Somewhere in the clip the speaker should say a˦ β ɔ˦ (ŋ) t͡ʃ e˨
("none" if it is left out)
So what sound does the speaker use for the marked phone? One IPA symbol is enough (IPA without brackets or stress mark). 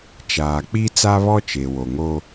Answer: none